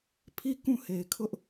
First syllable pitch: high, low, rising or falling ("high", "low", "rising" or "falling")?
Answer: falling